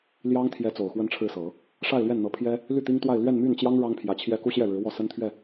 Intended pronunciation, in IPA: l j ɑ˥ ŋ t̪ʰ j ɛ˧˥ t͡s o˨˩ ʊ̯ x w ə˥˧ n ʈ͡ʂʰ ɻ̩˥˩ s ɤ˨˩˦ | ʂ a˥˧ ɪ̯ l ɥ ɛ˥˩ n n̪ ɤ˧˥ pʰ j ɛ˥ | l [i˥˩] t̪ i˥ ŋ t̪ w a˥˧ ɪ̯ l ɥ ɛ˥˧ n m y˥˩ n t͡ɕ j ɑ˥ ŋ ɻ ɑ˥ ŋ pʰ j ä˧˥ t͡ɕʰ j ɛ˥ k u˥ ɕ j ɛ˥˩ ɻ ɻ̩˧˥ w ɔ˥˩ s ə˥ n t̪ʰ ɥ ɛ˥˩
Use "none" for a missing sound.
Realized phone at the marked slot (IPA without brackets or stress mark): y˥˩